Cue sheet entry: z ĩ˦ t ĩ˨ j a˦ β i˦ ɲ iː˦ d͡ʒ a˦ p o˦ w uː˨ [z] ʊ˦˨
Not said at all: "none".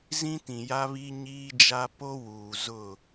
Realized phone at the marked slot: z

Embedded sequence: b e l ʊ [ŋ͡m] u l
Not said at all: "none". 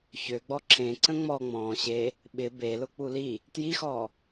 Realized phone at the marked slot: k͡p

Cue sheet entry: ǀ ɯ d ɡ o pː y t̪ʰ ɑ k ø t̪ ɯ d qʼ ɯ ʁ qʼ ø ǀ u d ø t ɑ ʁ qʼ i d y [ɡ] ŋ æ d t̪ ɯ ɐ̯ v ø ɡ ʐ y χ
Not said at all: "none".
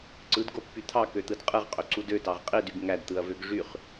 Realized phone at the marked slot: ɡ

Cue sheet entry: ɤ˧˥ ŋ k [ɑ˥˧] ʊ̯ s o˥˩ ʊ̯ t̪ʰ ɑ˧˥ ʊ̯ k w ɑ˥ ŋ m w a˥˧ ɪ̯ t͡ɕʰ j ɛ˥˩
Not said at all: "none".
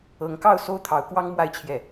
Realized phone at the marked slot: ɑ˥˧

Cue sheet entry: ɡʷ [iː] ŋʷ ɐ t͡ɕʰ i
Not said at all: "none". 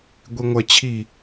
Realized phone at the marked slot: i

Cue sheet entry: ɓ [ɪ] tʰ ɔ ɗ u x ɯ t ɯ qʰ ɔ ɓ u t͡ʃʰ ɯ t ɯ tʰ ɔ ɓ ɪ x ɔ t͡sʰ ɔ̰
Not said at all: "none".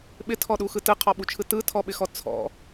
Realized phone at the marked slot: ɪ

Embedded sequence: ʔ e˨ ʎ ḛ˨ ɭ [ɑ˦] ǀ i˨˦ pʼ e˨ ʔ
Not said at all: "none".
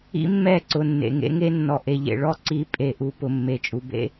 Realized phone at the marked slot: ɔ˦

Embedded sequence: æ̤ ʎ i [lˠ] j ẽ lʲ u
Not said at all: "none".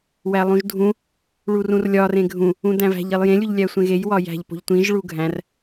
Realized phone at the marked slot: lˠ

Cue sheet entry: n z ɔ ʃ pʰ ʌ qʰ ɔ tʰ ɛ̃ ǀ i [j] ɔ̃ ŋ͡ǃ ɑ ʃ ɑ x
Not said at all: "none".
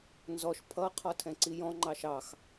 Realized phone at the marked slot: j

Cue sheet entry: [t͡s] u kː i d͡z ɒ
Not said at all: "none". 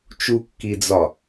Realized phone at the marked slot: t͡ʃ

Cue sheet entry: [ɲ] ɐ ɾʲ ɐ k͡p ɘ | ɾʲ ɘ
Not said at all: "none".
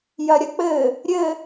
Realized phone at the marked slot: j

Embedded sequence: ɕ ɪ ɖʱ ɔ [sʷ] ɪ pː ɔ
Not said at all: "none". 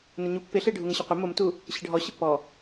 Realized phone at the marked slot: ɕ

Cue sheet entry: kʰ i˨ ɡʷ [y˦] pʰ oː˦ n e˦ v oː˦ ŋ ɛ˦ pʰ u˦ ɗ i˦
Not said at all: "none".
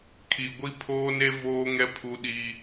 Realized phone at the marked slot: i˦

